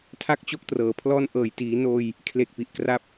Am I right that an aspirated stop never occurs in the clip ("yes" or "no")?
no